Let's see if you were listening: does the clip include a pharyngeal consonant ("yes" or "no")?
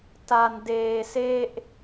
no